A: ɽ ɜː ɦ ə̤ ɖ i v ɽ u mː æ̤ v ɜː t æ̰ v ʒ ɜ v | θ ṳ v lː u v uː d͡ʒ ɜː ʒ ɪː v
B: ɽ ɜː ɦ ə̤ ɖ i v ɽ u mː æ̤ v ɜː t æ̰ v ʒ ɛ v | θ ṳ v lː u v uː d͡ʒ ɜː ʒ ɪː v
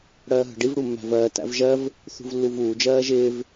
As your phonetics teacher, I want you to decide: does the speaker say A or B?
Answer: A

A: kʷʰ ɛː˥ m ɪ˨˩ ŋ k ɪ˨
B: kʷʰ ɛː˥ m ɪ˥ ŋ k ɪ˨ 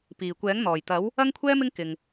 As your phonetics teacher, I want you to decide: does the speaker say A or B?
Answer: B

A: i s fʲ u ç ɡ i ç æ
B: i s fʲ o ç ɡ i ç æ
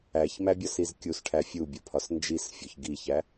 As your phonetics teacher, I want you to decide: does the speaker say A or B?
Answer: B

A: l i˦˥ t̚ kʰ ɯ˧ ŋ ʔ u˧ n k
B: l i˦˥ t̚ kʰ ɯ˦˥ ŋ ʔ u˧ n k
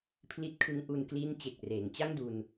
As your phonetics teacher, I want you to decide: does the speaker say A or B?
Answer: B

